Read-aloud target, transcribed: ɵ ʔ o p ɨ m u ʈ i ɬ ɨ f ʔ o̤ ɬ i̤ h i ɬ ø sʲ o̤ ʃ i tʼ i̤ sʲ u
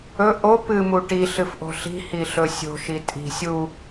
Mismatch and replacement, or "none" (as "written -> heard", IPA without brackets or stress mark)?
ø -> ɵ